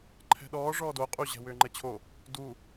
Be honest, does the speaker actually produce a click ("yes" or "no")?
yes